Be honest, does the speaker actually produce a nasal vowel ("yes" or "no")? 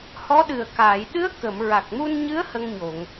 no